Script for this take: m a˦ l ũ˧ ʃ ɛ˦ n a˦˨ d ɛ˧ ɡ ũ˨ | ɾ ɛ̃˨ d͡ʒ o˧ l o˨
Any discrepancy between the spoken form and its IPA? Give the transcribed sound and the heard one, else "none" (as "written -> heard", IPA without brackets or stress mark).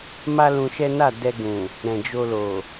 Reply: none